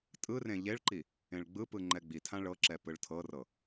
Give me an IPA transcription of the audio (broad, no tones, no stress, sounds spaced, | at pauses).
tʼ ɯ r ẽ ʎ e ɭ ǃ i | ẽ ɭ ɡ͡b ɯ p ɯ ŋ͡ǃ ɛ ɡ͡b i tʰ ã ɭ ɤ ǁ ɛ p ɯ ɭ tʰ ɤ r ɤ